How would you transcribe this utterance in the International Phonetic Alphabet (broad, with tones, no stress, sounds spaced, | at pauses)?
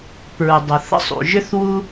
p ɹ u˩ dˤ ə˩ θ ə̰˦ sˤ ṵ˩ ʒ ʏ˦ θ w u˦